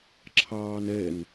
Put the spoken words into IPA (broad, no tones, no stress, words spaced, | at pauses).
ǁʰɑːnɛn